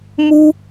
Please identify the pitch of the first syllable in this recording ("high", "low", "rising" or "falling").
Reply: high